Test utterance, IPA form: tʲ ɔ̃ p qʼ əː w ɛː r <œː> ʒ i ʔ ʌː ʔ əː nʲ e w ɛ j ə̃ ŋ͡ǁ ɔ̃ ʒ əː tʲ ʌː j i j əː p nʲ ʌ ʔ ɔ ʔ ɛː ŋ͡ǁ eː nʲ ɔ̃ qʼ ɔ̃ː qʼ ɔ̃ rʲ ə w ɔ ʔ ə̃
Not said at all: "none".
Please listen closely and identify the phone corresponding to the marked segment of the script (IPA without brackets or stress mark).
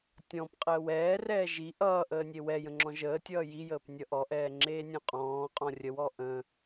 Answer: ɛː